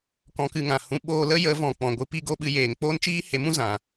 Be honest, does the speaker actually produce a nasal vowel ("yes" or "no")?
yes